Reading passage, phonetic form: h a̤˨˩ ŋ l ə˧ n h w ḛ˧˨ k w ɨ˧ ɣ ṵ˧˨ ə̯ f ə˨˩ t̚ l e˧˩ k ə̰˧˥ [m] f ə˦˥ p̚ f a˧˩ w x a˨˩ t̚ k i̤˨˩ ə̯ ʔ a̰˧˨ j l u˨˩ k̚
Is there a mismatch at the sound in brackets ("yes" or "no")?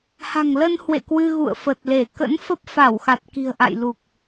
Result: yes